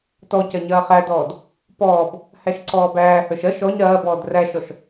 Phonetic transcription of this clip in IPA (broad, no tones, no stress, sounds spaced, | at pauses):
t ɔ c ɐ ɲ ɐː χ æ d ɔː d | p ɔː b | h æ ʃ ǀ ɔː b æː h ə˞ ʃ ɐ ʃ ɔ ɲ ɾ ɐː b ɔː d r æ ʃ ɔ ʃ